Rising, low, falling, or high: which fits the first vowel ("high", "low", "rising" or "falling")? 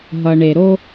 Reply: low